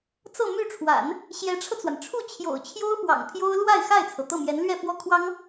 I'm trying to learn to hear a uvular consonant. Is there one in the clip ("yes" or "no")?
no